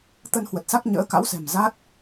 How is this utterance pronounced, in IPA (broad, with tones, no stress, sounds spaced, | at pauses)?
t̪ ə˧ n h w ə˨˩ t̚ s a˦˥ k̚ ɲ ə̰ː˧˥ k a̰˧˥ w s ɛ̤˨˩ m z a˦˥ t̚